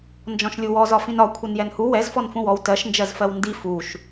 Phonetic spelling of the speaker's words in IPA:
n d͡ʒ ɔ̃ ʃ lʲ u w ɔ z ɒ f ĩ n ɒ kʷʰ ɛ n j ɛ n h u w ɛ z f ɔ n f ũ w ɔ w t ɜ ʃ n d͡ʒ ɜ z f ɜ w n d i f u ʃ

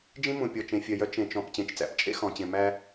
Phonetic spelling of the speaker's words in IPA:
d͡ʒ ĩ˦ m ũ˨ pʲ ɔ˨ t͡ʃ ẽ˨ fʲ œ˨ j œ˦ t͡ʃ ẽ˨ t͡ʃ ɔ̃˨ p t͡ɕ ẽ˨ t͡ʃ t͡s æ̰˨ p t͡ʃʼ ḛ˦ x ɔ̃˨ t͡ɕ ẽ˨ m æ˦

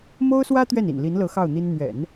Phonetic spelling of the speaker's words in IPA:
m o˥ ʊ̯ s w ä˥ t̪ ɥ ɛ˥˩ n ḭ˨˩ n l i˧˥ n l ɤ˧˥ x ɑ˥˩ ʊ̯ n̪ i˥ n n̪ ɥ ɛ̰˨˩˦ n

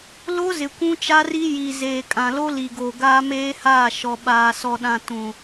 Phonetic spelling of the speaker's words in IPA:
l o˦ z ɪ˨ kʷ ũ˦ t͡ʃ a˦ r i˦ j i˨ z eː˨ kʼ ã˨ l o˦ l i˨ ɡ o˨ ɡ aː˦ m eː˦ h aː˦˨ ʃ ɔ˨ ɓ aː˨ s ɔ˨ ɗ ã˨ t ũ˨

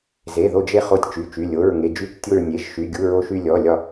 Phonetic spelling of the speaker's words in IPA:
z e˩˧˩ ð o˧˩ d͡ʒ e˧˩ χ o˧˩ tʲ t͡ʃ y˩˧˩ t͡ʃ y˩˧˩ lʲ o˩˧˩ ɹ ŋ e˩˧˩ d͡ʒ y˧˩ t͡ʃ tʲ o˧˩ ɹ nʲ e˩˧˩ ʒ ʃ y˩˧˩ ɡʲ u˩˧˩ ɹ o˧˩ ʃ y˧˩ lʲ ɔ˩˧˩ lʲ ɒ˧˩

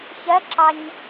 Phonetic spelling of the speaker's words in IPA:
ç ɜ ǁ ɑ ɲ

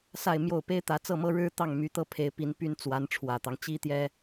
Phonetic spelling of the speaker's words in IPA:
s a˥˧ ɪ̯ m j o˥˩ ʊ̯ p e˥ ɪ̯ t̪ ä˧˥ t͡s ɤ˥˩ m ɤ˥ ɻ ɻ̩˥ t̪ ɑ˥˩ ŋ m y˧˥ t̪ ɤ˥˩ pʰ e˧˥ ɪ̯ p i˧˥ n p y˥ n t͡s w a˧˥ n ʈ͡ʂʰ w ä˨˩ t̪ ɑ˦ ŋ t͡ɕ i˥ t̪ j ɛ˥

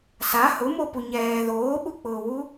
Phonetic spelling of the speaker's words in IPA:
s a h ʊ m o p u ɲ ɛː ð oː ɓ u k͡p ʊː w u

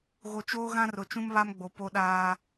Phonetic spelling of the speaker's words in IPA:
ɣ o˨ t͡ʃ oː˦ ɣ ã˦ r ʊ˨ t͡ʃ ũ˦ m β a˦ m ɡ͡b o˨ p o˦ ɗ aː˦

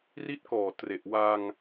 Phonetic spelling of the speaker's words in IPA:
r i˦˥ t̚ k ɔː˨˩ t r e˨˩ ʔ w a˧ ŋ

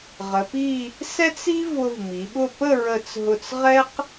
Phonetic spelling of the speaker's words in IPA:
ʁ ə˩˧ p i˥˧ | s ɛ˥ t͡s i˥ v ʊ˧ v m i˩˧ ɓ ʊ˥˧ p ə˥˧ ɹ ə˧˩ t͡s ɦ ʊ˧˩ t͡s ʁ ɛ˥ q

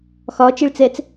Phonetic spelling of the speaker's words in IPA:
x ɒ t͡ʃ i ɭ t͡s ɛ t͡s

